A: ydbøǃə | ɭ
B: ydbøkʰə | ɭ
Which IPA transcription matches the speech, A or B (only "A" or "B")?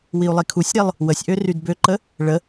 A